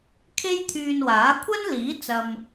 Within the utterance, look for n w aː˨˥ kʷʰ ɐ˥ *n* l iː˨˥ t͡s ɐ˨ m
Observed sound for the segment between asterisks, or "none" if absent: n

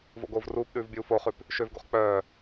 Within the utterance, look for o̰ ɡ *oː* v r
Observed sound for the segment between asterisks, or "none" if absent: oː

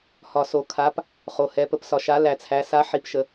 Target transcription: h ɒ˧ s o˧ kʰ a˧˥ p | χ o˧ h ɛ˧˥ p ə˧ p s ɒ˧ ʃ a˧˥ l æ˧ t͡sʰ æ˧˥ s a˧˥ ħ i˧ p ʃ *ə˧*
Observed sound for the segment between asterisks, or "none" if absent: ə˧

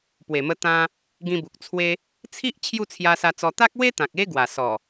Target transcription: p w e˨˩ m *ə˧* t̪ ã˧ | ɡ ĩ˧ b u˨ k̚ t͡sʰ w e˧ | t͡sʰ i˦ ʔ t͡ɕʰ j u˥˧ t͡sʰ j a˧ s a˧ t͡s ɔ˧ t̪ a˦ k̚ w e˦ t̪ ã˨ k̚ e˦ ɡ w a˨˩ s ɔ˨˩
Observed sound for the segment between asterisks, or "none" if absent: ə˧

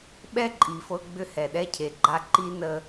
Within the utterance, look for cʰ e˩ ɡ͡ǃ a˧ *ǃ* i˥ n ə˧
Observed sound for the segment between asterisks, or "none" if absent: ǃ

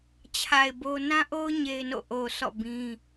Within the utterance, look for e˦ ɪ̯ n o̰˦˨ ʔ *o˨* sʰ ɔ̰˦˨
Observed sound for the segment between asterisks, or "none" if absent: o˨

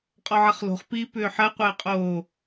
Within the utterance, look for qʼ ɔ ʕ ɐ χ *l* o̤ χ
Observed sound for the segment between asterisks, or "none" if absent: l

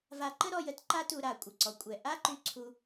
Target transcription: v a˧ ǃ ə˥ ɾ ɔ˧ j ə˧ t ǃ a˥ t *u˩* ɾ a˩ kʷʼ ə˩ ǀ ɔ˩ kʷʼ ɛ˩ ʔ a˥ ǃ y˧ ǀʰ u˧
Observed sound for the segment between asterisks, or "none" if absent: u˧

